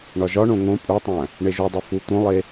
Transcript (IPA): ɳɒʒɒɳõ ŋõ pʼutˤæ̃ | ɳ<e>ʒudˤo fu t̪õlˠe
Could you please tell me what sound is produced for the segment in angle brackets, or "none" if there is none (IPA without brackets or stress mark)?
e